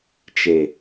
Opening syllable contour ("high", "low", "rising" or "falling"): low